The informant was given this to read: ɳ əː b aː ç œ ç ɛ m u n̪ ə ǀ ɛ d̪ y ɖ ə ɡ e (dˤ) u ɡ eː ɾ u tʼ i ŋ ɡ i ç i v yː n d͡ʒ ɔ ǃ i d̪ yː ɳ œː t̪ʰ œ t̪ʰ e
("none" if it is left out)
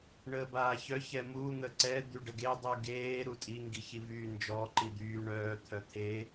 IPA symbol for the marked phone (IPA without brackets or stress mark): dˤ